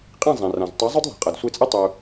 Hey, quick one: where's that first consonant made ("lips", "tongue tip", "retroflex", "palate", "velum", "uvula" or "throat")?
uvula